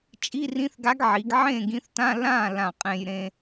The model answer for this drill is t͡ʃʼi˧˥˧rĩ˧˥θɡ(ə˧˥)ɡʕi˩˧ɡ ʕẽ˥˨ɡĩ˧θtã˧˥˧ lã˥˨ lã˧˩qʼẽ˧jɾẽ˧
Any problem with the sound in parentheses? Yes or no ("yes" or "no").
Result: yes